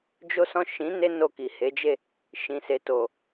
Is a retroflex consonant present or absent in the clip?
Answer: absent